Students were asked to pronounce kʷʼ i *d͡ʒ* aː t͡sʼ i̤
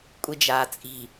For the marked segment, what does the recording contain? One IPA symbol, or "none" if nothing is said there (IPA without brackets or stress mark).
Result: d͡ʒ